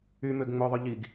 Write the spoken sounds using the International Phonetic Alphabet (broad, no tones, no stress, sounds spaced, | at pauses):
y m ø ɡ ŋ͡m ɵ ðˤ ɵ ʎ i ɡ